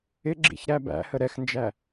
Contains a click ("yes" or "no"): yes